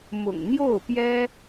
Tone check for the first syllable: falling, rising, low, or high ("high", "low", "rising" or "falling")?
low